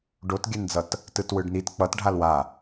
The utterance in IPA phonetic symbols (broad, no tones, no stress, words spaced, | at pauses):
ɖotɡʲɛnd͡zʌt | tɯtwɯɖnit k͡pʌt ɖʱalwa